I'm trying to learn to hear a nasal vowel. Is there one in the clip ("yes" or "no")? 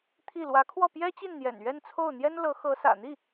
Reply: no